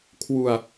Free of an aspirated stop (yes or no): no